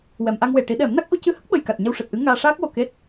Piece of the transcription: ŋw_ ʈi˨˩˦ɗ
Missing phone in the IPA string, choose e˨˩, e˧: e˨˩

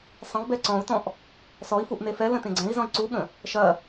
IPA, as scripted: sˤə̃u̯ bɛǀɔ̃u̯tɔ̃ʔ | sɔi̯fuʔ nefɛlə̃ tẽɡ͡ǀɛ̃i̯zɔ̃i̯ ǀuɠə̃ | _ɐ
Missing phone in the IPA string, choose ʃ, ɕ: ʃ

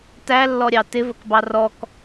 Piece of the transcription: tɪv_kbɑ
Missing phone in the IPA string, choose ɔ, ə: ə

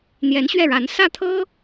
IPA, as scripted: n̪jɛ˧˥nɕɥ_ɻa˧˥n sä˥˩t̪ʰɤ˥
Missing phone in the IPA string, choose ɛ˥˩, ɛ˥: ɛ˥˩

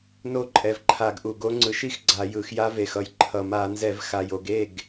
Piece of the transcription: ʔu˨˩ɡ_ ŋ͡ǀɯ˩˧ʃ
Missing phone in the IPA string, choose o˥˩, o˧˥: o˧˥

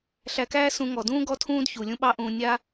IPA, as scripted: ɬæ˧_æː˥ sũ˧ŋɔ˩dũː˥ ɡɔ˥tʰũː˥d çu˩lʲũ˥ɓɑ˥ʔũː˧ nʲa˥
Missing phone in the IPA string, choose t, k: k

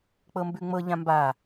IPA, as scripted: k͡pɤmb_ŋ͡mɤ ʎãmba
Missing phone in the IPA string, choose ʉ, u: ʉ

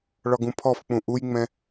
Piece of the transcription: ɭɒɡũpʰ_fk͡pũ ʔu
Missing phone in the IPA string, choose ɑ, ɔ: ɔ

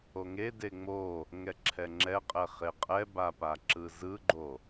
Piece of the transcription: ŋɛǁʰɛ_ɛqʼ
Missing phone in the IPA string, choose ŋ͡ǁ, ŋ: ŋ͡ǁ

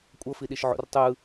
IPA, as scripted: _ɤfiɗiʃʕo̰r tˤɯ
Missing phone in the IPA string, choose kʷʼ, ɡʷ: kʷʼ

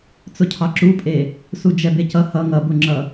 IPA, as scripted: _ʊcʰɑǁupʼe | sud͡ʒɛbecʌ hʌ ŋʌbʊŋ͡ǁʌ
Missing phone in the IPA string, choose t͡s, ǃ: t͡s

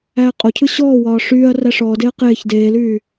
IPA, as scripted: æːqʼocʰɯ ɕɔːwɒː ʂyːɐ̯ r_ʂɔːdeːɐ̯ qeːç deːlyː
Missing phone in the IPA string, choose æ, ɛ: æ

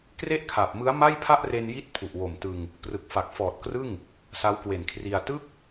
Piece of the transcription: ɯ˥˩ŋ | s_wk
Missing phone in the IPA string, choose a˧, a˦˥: a˦˥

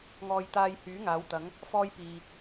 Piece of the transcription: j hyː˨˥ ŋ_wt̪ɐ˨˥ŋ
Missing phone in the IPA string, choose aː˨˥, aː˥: aː˨˥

